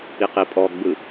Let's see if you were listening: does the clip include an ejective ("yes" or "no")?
yes